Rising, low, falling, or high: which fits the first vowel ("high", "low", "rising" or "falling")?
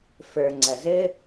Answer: low